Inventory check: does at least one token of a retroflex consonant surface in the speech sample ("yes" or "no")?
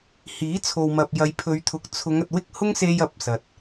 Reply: no